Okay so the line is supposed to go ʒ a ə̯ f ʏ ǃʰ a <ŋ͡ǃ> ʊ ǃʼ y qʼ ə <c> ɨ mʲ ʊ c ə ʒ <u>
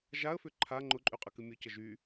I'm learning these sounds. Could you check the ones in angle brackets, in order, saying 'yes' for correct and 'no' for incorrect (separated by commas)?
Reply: yes, no, no